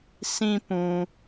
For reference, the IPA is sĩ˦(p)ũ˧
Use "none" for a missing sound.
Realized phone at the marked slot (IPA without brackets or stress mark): p